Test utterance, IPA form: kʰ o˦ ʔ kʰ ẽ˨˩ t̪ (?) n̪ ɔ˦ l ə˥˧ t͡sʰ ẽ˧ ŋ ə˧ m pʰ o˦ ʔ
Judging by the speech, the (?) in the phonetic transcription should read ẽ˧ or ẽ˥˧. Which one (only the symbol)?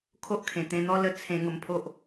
ẽ˧